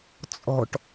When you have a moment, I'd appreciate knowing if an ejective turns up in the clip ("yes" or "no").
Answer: yes